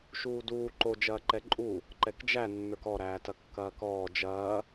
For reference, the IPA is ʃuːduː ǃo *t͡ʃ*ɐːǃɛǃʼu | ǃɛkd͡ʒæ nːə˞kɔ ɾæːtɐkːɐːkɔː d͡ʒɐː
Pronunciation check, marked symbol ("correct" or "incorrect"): incorrect